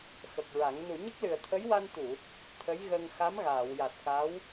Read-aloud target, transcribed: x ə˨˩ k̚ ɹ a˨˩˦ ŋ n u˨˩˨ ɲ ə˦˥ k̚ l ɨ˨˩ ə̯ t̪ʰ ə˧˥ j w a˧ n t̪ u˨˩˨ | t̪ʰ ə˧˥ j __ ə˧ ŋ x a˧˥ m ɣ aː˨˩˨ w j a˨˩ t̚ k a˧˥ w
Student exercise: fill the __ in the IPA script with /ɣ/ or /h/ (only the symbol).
ɣ